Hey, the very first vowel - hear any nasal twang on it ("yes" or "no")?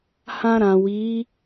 yes